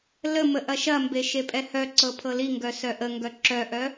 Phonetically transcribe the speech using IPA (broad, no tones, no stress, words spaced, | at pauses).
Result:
ləmə ʔɐʃɐmbe ʃepʼɛhœǀɤ pʰɤliŋɡœ sœʔəŋɡœ ǁœʔœ